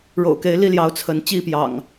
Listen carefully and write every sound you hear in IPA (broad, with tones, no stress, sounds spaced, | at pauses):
ɻ o̰˨˩ ʊ̯ k e˨˦ ɪ̯ l i˥˨ l j ɑ˨˦ ʊ̯ t͡sʰ ə˨˦ n t͡ɕ i˥˨ p j ɑ̰˨˩ ŋ